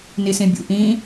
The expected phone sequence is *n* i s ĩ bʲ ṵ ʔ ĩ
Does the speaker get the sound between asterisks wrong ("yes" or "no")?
no